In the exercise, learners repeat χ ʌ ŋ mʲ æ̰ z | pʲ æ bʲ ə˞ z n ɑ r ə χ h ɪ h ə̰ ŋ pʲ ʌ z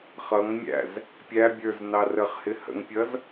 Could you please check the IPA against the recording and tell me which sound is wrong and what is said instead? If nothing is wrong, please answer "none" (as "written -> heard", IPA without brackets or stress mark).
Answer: none